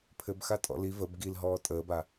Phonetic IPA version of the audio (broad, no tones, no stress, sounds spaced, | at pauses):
pʰ ɘ b x a tʼ ɔ̰ l i v ə b ɡ i l ɦ ɔː tʼ əː b a